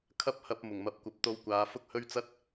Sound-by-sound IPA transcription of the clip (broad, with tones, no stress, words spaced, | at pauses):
kʰɐ˥p̚hɐ˧p̚ mʊ˨˩ŋmɐ˨˥p̚kʷɐ˨˥p̚t̪o˧w kʷaː˨˧fʊ˥k̚hɵ˥ɥt͡sɐ˥t̚